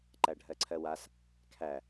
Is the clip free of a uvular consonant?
yes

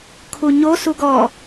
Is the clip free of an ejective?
yes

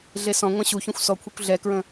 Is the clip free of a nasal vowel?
no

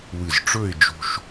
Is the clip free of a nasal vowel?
yes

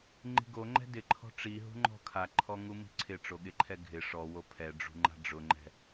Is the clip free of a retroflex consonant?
no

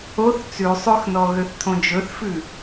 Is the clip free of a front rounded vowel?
no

